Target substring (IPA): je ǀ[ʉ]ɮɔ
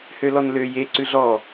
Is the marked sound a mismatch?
no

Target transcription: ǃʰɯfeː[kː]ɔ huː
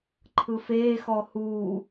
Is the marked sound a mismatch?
yes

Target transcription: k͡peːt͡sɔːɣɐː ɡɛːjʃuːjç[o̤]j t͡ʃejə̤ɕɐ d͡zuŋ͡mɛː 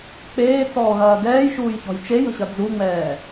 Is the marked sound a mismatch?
yes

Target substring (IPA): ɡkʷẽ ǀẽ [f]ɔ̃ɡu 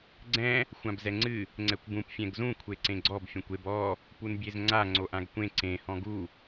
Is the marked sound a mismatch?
yes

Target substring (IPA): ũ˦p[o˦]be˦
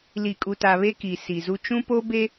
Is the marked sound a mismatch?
no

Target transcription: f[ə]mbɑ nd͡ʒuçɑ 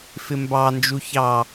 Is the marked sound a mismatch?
yes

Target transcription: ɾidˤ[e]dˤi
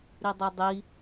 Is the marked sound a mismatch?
no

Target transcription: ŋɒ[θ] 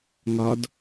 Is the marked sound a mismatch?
yes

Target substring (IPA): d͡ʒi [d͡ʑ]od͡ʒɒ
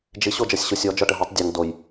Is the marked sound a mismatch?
yes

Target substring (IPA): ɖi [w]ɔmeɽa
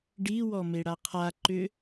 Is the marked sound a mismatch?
no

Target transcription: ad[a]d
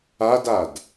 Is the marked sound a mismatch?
no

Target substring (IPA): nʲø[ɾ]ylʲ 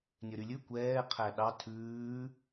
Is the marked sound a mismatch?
no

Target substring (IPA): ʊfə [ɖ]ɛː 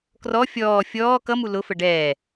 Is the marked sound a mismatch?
no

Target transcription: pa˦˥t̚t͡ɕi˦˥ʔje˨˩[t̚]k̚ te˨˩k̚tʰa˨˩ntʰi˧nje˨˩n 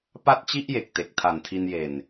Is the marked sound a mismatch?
yes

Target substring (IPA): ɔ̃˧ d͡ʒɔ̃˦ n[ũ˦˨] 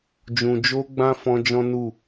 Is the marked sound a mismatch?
yes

